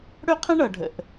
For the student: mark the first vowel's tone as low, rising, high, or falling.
high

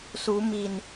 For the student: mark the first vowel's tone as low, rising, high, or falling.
rising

